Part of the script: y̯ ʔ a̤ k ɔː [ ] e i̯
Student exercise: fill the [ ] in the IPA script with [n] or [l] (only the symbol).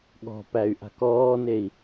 n